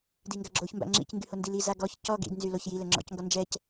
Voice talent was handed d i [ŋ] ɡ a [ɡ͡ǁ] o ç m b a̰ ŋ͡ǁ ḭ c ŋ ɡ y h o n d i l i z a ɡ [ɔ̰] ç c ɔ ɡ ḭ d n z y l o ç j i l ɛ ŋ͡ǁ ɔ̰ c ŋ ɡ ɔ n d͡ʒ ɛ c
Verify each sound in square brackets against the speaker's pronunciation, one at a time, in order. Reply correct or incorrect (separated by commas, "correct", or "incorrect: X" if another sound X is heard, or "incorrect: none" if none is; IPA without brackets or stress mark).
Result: correct, correct, incorrect: ɔ